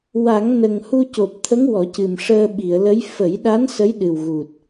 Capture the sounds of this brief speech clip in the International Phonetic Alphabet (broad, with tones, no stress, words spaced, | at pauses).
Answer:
wa˨˩˦ŋnə˨˩ŋ hu˧co˨˩p̚t̪ʰə˧˥ŋ wɔ˨˩˦cɨ˨˩mʂəː˧ ɓi˨˩˨ə̯lə˧˥j fə˨˩˦jɗa˧˥n sə˧˥jɗɨ˨˩wɣu˨˩t̚